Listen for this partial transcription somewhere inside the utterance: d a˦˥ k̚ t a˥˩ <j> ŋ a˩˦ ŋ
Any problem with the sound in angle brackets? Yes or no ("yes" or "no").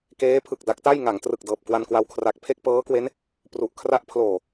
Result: no